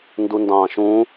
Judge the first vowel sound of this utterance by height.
high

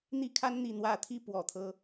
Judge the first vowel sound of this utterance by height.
high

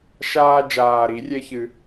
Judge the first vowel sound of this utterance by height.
low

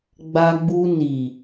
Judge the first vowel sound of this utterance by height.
low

